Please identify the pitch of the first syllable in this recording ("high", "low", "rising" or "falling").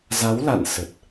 rising